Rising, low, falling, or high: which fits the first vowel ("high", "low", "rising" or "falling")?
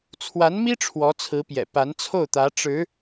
rising